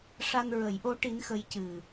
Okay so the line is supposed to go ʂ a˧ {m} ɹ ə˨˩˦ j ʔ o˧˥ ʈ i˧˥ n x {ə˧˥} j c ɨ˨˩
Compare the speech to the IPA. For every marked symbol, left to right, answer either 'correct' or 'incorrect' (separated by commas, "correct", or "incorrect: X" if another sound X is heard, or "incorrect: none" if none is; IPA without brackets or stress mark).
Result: incorrect: n, correct